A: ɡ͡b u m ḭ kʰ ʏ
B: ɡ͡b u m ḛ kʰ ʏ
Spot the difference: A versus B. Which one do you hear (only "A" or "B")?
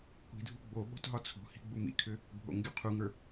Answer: A